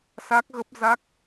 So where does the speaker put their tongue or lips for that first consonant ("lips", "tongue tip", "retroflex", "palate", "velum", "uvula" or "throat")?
tongue tip